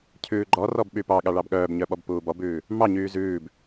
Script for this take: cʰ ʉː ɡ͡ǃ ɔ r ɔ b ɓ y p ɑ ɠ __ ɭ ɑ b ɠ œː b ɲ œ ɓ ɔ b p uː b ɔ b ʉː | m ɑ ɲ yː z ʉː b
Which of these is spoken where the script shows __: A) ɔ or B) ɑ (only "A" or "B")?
B